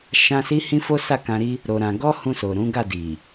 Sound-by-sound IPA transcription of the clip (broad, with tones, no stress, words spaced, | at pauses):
ʃã˦ si˦hĩ˦fo˦ sa˦˨kã˧ɾi˦ | ɾo˧ɾã˧ ɡɔ˦hũ˧so˨ ɾũ˨˦ɡa˦˨di˨